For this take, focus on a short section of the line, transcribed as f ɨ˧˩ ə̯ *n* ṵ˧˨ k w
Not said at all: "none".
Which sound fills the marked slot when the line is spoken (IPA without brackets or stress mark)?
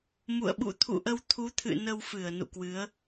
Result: n